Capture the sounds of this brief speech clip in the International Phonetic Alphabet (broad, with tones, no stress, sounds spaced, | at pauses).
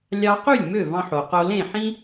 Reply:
lʲ ɑ˧ q y˥˩ lʲ m ø˥˩ v ɑ̃˧ ħ o˩ q o˧ l ẽ˥˩ ħ ĩ˥